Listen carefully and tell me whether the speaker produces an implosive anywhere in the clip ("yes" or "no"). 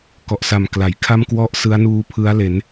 no